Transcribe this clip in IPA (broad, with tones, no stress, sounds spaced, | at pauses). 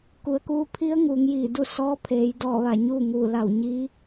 k u˩ ə̯ k uː˧ pʰ i˧˥ ə̯ ŋ uː˩˧ ŋ j iː˧˩ d u˥˨ s ɔː˧˥ pʰ eː˩˧ j d ɔː˧˩ ʋ a˧˩ ɲ uː˥˨ ŋ uː˧˩ l a˧˩ w ɲ iː˧˥